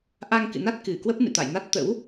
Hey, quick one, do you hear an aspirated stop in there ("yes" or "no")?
no